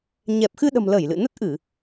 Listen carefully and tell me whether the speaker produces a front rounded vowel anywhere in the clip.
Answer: no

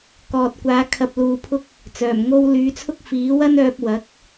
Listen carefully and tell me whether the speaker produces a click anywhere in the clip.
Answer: no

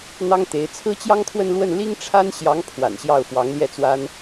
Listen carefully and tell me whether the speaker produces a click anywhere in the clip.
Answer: no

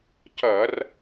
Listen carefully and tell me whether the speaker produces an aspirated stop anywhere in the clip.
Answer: no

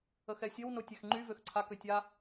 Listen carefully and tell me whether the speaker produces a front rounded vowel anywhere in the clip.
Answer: yes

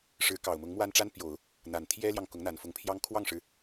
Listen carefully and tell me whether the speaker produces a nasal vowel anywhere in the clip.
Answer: no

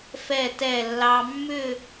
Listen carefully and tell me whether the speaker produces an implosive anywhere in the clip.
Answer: no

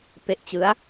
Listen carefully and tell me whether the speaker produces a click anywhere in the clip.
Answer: no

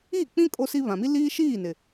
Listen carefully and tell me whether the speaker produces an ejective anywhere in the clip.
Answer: yes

